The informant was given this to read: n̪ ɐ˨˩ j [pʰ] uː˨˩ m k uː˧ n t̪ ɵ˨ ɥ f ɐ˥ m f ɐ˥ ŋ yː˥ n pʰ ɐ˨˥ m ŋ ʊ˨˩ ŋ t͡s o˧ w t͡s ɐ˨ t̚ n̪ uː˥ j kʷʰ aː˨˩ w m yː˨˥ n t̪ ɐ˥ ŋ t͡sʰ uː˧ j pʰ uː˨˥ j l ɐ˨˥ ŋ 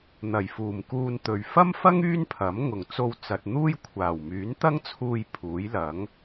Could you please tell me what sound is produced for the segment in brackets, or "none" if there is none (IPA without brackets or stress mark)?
f